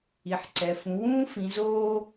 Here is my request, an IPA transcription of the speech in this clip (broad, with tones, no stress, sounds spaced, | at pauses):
i˨ ħ ǀ ɛ˨ f ũ˨˦ w ũː˥ f ĩ˨˦ z oː˥